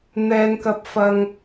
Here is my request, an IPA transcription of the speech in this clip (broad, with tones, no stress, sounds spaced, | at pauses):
n̪ ɛː˥ n k ɐ˥ p̚ f ɐ˥ ŋ